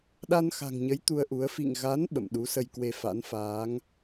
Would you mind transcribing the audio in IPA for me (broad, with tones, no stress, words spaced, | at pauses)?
ɗa˧nxa̤˨˩ŋɲə˨˦j t̪u˧ə̯ʔu˨˦ə̯ fḭ˧˨ŋ ɣa˨˦n ɓə̰˧˨m ɗu˨˦sə˧j kwe˧fa̰˧˥nfaː˨˦ŋ